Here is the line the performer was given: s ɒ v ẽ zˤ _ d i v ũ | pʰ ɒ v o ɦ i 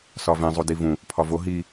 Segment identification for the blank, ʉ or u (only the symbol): u